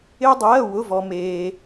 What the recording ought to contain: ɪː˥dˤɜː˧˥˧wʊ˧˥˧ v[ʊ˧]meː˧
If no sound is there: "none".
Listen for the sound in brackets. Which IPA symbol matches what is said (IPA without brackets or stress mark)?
ɔ˧